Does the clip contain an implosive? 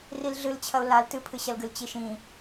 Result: no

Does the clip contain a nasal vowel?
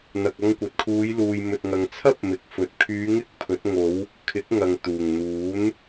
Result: no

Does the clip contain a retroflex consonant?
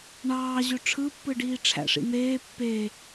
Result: yes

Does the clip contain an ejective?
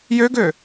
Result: no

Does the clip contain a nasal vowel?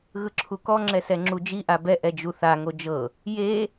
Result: no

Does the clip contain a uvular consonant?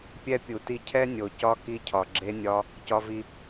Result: no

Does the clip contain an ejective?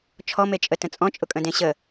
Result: yes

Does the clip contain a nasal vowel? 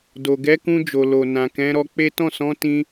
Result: yes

